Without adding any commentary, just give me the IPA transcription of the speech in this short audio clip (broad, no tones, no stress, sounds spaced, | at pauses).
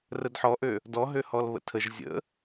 r ə d ħ ɔ ʔ ø | d ɔ ɦ ø h ɔ l β ə̰ tʰ ə ʒ zʲ ə̰